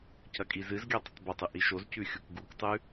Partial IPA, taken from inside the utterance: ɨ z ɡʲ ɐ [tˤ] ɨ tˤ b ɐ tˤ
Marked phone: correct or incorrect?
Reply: correct